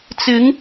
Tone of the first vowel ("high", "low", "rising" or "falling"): rising